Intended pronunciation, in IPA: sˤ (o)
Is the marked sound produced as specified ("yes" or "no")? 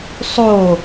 yes